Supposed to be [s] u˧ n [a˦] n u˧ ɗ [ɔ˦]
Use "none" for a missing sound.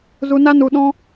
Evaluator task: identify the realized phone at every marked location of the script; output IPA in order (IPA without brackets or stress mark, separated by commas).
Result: z, a˦, ɔ̃˦